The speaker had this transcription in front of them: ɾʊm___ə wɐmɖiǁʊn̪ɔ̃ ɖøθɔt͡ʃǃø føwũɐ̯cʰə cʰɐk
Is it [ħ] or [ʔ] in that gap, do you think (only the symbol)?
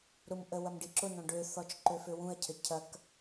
ʔ